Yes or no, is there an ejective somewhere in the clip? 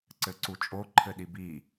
yes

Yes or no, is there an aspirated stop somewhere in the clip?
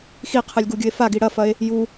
yes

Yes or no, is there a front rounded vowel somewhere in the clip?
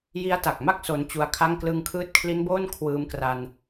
no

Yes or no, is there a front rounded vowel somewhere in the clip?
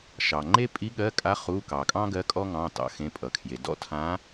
no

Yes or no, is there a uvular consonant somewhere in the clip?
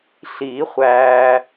yes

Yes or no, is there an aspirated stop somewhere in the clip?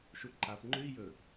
no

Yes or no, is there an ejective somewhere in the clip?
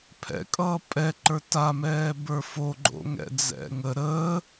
yes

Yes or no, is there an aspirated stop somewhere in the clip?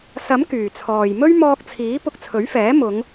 yes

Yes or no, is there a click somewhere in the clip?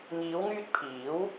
no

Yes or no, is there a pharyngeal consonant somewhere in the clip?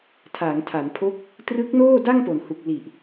no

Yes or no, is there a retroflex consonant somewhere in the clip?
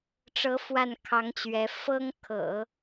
yes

